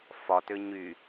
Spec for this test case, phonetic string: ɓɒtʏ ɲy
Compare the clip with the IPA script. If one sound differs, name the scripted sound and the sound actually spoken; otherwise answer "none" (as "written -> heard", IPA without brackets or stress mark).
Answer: ɓ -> f